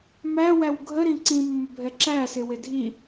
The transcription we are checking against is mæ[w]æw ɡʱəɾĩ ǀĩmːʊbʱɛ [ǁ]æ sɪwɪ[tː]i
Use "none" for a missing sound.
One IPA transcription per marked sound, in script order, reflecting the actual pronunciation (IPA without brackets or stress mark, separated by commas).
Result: w, ǁ, dʱ